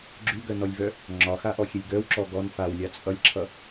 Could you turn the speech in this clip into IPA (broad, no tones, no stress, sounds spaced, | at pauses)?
ɡ͡ǁ ʉ ɡ œ n ɔ lʲ v œ | ŋ͡ǁ ɒ x a ʔ ɔ xʲ ɛ lʲ ɡ œ w ǁ ɔ ɡ ɔ n f a w lʲ a t͡sʼ ʌ lʲ ǁʰ ʌ